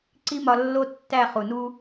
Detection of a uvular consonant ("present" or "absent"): present